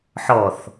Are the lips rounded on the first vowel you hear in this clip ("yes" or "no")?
yes